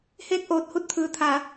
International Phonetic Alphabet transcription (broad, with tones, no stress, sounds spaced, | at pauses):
h eː˥˨ k̚ ʔ oː˧ t̚ h u˥˨ t̚ t̪ʰ ɯː˩ t̪ʰ a˩˧